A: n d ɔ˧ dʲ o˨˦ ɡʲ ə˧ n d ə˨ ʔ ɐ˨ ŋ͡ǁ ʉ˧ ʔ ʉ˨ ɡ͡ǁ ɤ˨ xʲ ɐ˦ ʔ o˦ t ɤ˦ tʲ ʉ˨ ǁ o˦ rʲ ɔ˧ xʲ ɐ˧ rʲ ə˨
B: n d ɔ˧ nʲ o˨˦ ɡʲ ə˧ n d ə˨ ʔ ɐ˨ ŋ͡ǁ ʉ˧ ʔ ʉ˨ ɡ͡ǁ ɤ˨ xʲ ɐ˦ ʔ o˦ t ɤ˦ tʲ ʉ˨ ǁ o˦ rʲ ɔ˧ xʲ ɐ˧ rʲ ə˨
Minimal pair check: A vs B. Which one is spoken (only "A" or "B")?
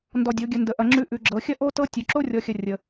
A